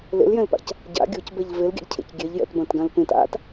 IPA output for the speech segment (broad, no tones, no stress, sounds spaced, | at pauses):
l ḛ l j ɛ̃ l p a̰ c | ɟ a̰ ɡʲ o c b ɛ ʎ v e l ɡʲ a̰ ʎ cʰ ḛ c ɡʲ ɛ ʎ j ɛ̰ t b ɐ̃ t ɡ ã l p ẽ t a̰ t